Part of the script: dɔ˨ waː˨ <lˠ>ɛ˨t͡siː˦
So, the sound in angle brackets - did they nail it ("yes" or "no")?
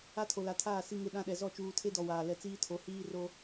no